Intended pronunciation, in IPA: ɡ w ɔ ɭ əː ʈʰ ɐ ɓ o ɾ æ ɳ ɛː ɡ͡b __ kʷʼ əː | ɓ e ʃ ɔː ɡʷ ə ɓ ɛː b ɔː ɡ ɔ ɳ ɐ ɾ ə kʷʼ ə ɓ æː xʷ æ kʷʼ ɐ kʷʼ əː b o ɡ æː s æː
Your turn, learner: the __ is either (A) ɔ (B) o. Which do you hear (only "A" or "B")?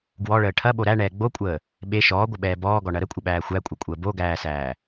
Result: B